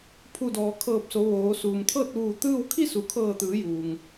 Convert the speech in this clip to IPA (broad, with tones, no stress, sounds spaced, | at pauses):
pʰ u˧˩ d ɔː˩ kʰ ɤː˧˩ p̚ s o˩˧ ʋ oː˩˧ s uː˩ m t̪ʰ ɤː˥˨ t̚ ʋ uː˧˩ t̪ ɯː˥˨ w kʰ i˥˨ s u˩ kʰ ɤː˧˩ t̪ ɯː˩˧ j uː˩ ŋ